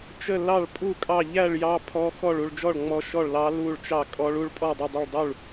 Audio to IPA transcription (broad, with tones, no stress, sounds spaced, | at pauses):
t͡ʃ ə˥˧ l ɑ˥˧ ɭ pʼ u˥˧ kʼ ɑ˥˧ ʎ æ˥˧ ɭ j ɑ˦˥ pʰ ɔ˦˥ x ɔ˥˧ ɭ u˥˧ ɭ d͡ʒ ɔ˥˧ ɭ ŋ͡m ɔ˦˥ ʃ ɔ˥˧ ɭ l ɑ˦˥ l u˥˧ ɭ t͡ʃ ɑ˥˧ kʼ ɔ˦˥ ɭ u˦˥ ɭ pʼ ɔ˥˧ dˤ ə˥˧ dˤ ə˥˧ ɭ dˤ u˥˧ ɭ